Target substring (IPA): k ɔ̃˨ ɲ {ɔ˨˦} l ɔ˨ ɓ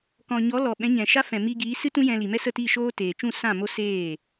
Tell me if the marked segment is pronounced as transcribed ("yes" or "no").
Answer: yes